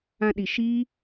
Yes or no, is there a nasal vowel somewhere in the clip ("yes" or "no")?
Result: yes